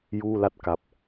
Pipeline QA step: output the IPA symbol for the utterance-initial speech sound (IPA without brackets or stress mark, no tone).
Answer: j